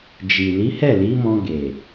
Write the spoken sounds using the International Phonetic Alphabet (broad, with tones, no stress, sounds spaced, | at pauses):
d͡ʒ i˨ l i˨˦ h ɛ˦˨ l i˨˦ m ɔ̃˧ ɡ e˨